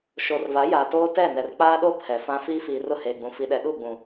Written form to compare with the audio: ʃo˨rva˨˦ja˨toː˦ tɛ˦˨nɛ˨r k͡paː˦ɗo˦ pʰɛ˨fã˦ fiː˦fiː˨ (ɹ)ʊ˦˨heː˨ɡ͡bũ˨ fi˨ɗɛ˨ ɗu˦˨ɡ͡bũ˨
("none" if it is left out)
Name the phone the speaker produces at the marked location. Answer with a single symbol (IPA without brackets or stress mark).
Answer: r